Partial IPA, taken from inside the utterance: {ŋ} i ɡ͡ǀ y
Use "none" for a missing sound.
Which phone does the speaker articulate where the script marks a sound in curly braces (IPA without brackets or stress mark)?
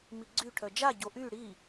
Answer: m